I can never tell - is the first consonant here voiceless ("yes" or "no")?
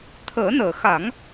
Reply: yes